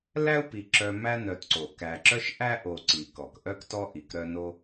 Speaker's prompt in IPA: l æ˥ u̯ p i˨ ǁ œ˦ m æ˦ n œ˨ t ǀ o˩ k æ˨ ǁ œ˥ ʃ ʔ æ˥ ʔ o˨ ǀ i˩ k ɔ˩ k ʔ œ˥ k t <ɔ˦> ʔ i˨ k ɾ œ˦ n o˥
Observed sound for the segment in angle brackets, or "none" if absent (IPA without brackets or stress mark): ɔ˦